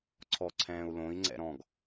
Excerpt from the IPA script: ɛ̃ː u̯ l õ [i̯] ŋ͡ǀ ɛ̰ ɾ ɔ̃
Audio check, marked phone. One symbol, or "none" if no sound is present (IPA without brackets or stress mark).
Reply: i̯